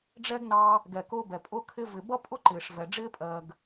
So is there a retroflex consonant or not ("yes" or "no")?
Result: yes